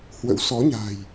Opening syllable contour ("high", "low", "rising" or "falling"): rising